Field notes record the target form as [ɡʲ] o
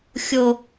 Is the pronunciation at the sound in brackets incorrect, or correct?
incorrect